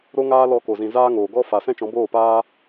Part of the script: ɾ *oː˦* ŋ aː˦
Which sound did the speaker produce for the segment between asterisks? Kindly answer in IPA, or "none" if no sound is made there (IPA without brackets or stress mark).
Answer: o˦